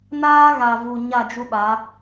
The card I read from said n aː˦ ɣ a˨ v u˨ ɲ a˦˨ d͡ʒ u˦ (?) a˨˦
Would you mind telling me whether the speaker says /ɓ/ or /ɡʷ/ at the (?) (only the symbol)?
ɓ